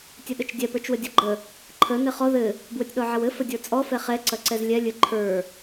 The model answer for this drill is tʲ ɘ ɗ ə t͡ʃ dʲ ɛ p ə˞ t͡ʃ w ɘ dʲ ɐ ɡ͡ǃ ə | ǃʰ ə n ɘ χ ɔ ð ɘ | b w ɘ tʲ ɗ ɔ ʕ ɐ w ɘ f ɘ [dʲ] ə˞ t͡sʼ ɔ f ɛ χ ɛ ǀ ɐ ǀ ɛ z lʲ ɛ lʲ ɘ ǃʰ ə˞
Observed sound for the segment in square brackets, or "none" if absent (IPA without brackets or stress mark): dʲ